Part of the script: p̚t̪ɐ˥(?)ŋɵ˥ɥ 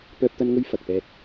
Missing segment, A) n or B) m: A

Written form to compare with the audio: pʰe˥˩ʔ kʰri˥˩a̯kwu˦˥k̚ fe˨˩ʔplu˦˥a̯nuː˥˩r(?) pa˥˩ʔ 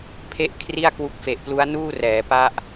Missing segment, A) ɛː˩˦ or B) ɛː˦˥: A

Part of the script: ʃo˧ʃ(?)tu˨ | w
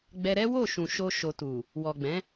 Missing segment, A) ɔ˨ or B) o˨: B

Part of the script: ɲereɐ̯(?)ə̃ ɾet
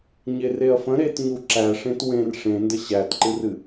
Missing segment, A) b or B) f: B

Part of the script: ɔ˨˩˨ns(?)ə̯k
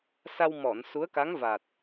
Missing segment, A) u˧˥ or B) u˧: A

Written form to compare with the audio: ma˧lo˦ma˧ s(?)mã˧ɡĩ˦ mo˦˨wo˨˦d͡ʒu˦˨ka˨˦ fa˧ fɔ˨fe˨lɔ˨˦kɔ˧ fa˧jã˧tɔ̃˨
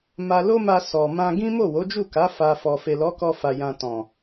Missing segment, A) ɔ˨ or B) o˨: A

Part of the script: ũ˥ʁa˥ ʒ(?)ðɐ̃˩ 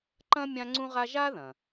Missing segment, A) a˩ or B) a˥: B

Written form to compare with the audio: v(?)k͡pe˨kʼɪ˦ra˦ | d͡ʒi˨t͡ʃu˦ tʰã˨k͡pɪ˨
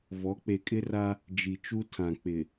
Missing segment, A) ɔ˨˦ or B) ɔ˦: A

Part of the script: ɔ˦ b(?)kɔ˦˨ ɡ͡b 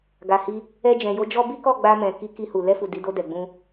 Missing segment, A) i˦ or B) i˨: A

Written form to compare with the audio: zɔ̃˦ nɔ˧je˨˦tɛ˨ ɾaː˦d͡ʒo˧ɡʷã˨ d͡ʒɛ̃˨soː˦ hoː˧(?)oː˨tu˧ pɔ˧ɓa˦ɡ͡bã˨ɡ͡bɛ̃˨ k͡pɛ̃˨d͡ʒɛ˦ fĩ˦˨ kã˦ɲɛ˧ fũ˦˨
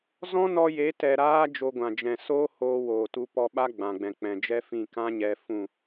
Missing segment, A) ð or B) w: B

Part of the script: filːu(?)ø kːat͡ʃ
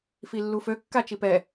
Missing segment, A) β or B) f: B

